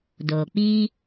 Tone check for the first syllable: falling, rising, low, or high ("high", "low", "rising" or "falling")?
low